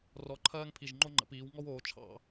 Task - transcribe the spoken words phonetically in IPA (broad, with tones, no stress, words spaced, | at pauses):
rɔ˩˥ ǃʰɜː˦ŋpʰi˨˩ʒ ŋ͡ǃo˦ŋ͡ǃə̰˩˧piː˩˧w ŋɔ˦w oː˩˧ t͡ʃʰɑ̰˧˩˧